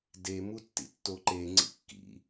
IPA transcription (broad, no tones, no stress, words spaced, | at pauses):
de mutːḭtːoǃe ŋ͡ǀḭkːḭ